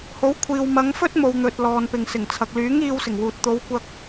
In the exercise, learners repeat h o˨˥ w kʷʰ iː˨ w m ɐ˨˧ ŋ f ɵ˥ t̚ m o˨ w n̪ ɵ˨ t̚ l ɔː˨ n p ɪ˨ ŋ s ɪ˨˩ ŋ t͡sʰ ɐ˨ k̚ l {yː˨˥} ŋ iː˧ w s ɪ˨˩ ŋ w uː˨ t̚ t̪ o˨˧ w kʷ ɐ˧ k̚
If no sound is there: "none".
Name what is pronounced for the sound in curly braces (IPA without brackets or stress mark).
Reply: yː˨˥